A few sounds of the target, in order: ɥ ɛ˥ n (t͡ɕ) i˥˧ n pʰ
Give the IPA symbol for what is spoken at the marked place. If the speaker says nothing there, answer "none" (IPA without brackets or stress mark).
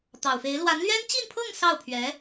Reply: t͡ɕ